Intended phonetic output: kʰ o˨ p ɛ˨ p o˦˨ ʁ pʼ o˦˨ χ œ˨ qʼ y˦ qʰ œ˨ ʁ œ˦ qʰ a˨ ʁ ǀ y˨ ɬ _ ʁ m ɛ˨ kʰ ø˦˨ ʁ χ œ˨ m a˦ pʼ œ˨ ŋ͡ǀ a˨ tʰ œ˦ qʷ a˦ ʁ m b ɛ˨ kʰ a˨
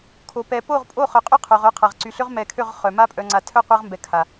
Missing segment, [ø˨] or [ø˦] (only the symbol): ø˦